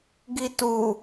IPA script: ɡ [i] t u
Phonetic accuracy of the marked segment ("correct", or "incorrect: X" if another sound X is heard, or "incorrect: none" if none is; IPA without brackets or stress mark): correct